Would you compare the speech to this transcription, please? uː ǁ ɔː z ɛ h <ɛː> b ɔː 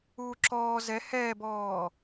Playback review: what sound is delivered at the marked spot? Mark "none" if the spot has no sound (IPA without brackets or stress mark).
ɛː